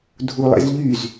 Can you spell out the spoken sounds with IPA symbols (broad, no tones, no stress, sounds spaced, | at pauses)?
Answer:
dʱ u lˠ ḛ z ʎ y z